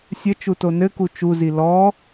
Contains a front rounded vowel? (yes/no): no